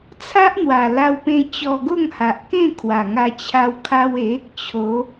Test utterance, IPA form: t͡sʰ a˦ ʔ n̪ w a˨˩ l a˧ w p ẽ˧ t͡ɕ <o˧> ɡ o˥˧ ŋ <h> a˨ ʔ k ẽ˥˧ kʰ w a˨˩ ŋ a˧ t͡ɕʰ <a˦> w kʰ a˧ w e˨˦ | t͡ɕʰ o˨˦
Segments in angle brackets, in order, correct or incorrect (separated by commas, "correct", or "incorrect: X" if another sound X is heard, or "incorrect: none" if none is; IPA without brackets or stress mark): incorrect: ɔ˧, correct, incorrect: a˧